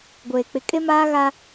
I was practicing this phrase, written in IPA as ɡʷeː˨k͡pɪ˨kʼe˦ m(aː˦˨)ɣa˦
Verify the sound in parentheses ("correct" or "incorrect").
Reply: incorrect